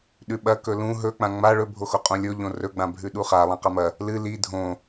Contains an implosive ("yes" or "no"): yes